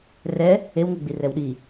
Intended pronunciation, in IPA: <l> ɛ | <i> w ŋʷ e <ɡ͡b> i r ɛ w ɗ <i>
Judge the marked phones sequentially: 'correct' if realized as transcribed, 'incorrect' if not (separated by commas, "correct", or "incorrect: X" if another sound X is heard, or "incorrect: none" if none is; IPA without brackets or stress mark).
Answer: incorrect: r, incorrect: e, correct, correct